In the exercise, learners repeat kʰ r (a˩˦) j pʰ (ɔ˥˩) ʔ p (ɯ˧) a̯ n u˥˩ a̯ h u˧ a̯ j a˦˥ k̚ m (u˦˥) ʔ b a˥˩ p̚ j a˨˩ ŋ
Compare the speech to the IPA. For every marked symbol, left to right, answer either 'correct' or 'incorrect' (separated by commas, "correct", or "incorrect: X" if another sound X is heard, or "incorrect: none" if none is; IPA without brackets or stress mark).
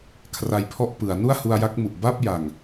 incorrect: a˧, correct, incorrect: ɯ˩˦, incorrect: u˨˩